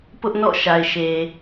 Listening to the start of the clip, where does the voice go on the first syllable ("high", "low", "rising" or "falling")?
high